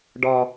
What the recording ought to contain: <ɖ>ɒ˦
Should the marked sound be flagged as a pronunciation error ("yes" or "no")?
no